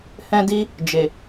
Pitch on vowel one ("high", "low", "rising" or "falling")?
high